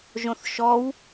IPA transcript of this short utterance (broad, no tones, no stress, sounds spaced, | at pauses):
ʒ õ θ ʃ ɔ w